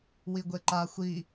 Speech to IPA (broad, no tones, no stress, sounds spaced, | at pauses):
w i ɡʷ e ǃ a xʷ i